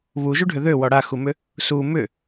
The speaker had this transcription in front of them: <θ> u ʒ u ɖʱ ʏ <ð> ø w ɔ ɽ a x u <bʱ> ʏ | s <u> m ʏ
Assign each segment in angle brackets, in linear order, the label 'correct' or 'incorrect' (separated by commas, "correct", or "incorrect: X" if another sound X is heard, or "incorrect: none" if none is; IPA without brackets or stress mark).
incorrect: β, correct, incorrect: m, correct